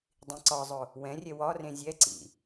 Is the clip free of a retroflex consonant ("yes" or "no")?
yes